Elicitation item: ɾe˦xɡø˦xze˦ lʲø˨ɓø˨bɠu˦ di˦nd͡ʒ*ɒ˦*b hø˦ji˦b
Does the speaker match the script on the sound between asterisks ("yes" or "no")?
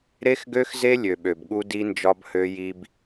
yes